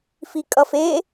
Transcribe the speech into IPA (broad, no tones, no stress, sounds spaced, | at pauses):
f i kʼ ʌ f e